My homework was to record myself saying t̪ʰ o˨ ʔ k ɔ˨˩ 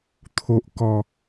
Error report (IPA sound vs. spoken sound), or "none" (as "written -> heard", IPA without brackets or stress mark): none